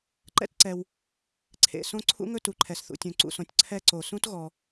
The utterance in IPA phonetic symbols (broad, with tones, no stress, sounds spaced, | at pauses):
ǃ ɛ̰˥ t ǀ ɛ˩ w | ǀʰ ḛ˩ s õ˥ ǀʰ ṵ˥ ŋ ɵ˥ t u˩ ǃʰ ɛ˩ s θ ṵ˩ tʲ ũ˩ ǀ ṵ˩ s õ˩ tʲ ǀʰ ɛ˥ ǀ o˩ s ũ˥ t ɣ ɔ˩